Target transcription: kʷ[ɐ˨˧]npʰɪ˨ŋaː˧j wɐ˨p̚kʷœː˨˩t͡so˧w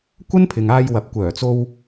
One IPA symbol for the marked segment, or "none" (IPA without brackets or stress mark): ɐ˥